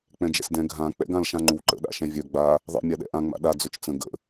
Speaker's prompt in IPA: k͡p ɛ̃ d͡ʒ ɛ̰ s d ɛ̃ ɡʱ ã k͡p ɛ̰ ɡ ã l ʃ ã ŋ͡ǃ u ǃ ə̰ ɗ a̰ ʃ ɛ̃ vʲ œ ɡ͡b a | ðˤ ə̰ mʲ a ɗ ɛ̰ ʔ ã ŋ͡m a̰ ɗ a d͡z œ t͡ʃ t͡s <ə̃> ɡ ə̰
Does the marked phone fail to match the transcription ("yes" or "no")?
no